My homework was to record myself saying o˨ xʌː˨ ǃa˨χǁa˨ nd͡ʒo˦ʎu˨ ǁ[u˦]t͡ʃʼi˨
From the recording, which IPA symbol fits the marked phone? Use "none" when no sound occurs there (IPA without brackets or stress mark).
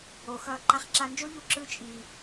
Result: ɯ˦